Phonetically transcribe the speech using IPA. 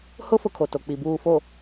hʊ˦ fʊ˦kʰo˨to˨k͡pi˨ buː˨fo˨

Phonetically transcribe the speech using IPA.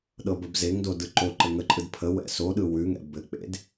ɗɤbəbzeŋdo dɯǃoǃɘ ŋəǃʼɯd pʰə wɛ̰soɗɯ wʉŋɛ̰ bɘk͡pḛd

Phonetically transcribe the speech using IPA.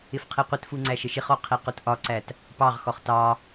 ɪfqʰiqʷɪtfu ŋ͡ǀæʃəʃɪχɔ qʰiqutʔɒǀæt | pɑʁxɔχ tɑ

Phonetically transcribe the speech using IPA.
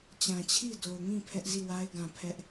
t͡ɕã˨t͡ɕʰi˦˨do˨ʊ̯ŋĩ˦˨ pʰɛ˦ʔzi˦˨wa˦ɪ̯ɡã˨ pʰɛ˦ʔ

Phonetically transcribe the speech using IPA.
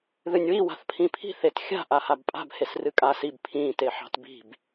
ðɨnʲwi wa̤θpʰĩpʰi̤ θetxʲa̤ ʔahabpʼa̤b hesrɨkʼasib pʰĩːt eħɑ̤tbi̤b

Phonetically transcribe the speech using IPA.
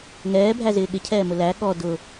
ŋɛːbʱæzɪː ɠɪcʰɛːmʊ læ ɠɔ dʊ

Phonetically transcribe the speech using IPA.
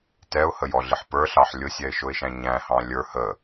tɛʊ̯həjɔɮɪħ pə˞ɬɑħ lʲʊsʲɛɪ̯ʃʊɪ̯ʃæ̃ ɲæ̃hɑ̃ lʲə˞ hə

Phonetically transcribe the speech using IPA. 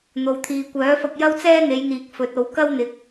n̪o˨wt̪ʰiː˨kʷœː˨˥fɐ˧k̚ jɐ˥wt͡sɛː˥n̪e˨˧jn̪iː˨k̚ fɵ˨˥t̚o˨˧w kɐ˥wn̪ɪ˨˥k̚

